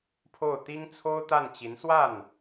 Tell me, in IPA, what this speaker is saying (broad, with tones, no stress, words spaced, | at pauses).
pʰo˥˩ʊ̯t̪i˥ŋt͡sʰo˥ʊ̯t̪a˥˩n t͡ɕi˧˥nswa˥˩n